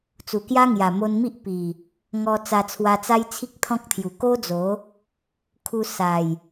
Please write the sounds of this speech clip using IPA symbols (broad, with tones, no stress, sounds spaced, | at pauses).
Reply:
t͡s u˨˩ k j a˦ ŋ j a˨˩ m o˧ n m i˦ ʔ p i˨˩ | ŋ ɔ˧ t͡s a˧ t͡sʰ w a˧ t͡s a˦ j t͡sʰ i˦ k̚ t̪ʰ ɔ̃˦ k̚ t̪ʰ j u˨˩ k o˦ d͡z o˨˦ | kʰ u˧ s a˨˩ j